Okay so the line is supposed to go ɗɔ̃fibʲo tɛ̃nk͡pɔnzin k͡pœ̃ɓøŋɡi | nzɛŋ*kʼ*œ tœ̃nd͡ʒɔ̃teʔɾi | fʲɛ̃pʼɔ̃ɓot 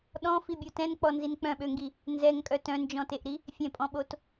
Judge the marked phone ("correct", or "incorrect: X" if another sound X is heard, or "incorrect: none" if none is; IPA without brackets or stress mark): correct